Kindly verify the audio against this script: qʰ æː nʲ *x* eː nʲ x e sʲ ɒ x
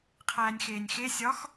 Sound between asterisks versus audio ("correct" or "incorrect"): correct